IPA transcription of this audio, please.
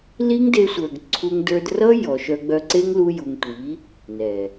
l i˦ ŋ d e˧ sʷ ə˞˨ ɡ ǀʰ u˧ ŋ d ə˞˧ d r ʌ˦ j ɔ˨ ʃ œ˧ ɡ͡b œ˧ ǀ e˦ ŋ l u˦ j u˧ ŋ tʷ i˨˦ | n ɛ˨

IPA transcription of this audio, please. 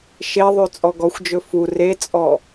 ʃ e ðˤ ʉ t͡sʼ ɔ ɡ ɔ xʷ d͡ʒ ɵ f u r e t͡sʼ ɔ

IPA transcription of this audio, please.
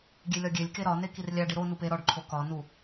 ɡʲ e lʲ ɒ ɡʲ e lʲ k e ɾ ɒ n e k i r lʲ æ ɖ i ɾ o n u p e ɾ ɒ ɖ ǃʰ o k ɒ n u

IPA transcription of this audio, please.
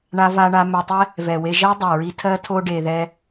ɳ a˧ v a˧ ɳ a˧ m ɛ˧ tˤ ɛ˦ | v ɛ˨ w e˧ ʒ ɜ˦ dˤ ɜ˨ ɹ i˧ tʰ ɜ˦ tʰ o˦ ɖ e˧ ð ɛ˦

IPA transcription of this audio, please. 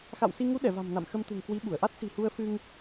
x a̰˧˨ w s i˧ ŋ u˨˦ ɗ ɛ˧˩ v a̤˨˩ m n a̰˧˨ m x ə˧ m t̪ ṳ˨˩ ŋ k w i˨˦ ɓ u˧˩ ə̯ ʔ a˦˥ t̚ s i̤˨˩ h u˧ ə̯ f ɨ˧ ŋ

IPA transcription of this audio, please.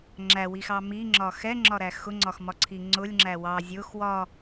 ŋ͡ǁ æ w i x ɑ m i ŋ͡ǁ ɒ x ɛ ŋ͡ǁ ɒ ɾ æ x ʊ ŋ͡ǀ ɒ x m ɒ ǀʰ i ŋ͡ǀ ʊ lʲ ŋ͡ǁ æ w ɑ zʲ ʊ x w ɒ

